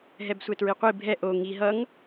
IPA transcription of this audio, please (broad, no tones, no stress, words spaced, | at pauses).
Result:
ɦɛbsʷɛtɹiqʷi bʱɛ ʔo ŋi ɦʌŋ